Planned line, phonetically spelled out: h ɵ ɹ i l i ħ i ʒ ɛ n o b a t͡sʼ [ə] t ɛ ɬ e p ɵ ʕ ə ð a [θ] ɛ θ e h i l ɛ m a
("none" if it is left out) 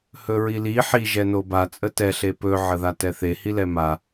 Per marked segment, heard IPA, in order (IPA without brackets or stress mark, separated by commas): ə, t